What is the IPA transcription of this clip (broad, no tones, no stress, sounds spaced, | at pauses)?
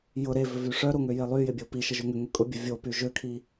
j ʊ ɾ e v ʏ v y ʂ œ ɾ o ŋ ø j e lˠ y j ɪ bʲ o p i ʃ ə ʒ ø ŋ ʏ ŋ ʏ kʼ ʊ bʲ ʊ vʲ o p y ʒ ø kʰ i